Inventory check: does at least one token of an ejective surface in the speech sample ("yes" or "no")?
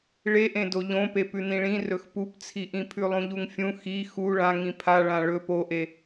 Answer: no